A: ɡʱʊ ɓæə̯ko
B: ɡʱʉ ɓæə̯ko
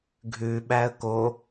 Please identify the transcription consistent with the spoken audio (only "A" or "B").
B